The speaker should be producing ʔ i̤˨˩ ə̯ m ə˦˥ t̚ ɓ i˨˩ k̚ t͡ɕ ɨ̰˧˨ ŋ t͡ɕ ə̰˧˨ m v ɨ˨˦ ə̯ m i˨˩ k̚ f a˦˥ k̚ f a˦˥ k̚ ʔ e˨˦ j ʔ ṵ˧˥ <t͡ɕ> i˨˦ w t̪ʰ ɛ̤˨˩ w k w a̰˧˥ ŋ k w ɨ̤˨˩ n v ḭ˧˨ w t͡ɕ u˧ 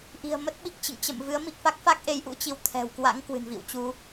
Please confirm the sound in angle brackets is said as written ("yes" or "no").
yes